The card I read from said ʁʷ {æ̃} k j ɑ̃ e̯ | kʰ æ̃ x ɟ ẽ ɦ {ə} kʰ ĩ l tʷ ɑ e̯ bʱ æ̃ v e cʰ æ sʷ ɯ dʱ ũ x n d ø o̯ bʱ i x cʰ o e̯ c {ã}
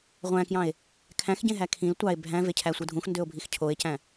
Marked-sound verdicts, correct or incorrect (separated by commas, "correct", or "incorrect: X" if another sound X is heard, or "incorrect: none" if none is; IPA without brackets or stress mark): correct, incorrect: æ, incorrect: æ̃